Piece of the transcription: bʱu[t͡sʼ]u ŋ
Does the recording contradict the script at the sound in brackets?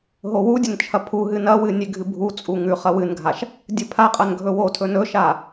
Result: no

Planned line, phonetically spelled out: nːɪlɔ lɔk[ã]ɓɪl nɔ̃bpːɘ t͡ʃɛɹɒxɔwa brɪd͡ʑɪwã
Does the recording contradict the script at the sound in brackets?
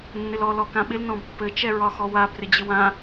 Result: no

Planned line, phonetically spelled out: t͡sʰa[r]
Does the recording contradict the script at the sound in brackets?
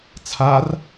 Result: no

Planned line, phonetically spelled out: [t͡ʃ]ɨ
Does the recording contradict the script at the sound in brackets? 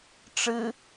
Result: yes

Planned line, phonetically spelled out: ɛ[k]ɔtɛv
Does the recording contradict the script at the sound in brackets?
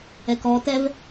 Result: no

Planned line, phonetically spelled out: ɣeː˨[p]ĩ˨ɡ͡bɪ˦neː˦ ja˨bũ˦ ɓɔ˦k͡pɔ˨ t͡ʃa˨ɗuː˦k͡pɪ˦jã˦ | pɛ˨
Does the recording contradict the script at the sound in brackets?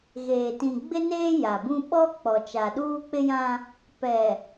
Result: yes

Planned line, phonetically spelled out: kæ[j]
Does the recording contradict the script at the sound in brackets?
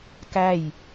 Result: no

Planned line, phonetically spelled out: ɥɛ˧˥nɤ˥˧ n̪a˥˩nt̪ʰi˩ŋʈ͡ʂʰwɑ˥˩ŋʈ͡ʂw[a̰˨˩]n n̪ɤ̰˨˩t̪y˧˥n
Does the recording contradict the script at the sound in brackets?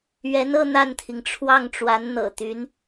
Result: yes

